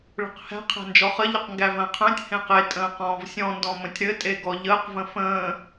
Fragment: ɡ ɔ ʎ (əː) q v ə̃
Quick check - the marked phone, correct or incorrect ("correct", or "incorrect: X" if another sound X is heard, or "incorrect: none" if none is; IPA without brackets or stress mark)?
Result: correct